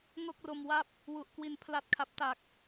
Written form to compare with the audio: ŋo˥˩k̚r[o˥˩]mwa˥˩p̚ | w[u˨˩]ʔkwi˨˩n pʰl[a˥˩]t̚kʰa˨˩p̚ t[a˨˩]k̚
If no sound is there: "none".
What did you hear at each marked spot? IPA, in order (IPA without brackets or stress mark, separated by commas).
o˧, u˨˩, a˨˩, a˨˩